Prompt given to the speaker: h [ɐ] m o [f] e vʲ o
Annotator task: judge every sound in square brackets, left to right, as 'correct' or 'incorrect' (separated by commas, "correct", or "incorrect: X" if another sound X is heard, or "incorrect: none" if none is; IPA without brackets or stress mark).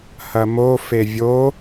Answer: correct, correct